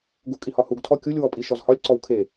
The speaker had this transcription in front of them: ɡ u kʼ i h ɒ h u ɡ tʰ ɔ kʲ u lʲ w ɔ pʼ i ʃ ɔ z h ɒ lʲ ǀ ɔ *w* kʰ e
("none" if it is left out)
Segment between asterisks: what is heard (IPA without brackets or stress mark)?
w